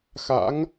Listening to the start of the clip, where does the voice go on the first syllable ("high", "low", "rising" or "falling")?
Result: rising